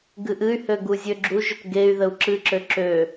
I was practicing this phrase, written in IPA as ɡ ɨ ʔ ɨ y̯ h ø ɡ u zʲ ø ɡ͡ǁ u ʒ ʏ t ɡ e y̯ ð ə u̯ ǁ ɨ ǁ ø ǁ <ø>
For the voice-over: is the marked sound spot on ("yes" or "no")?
yes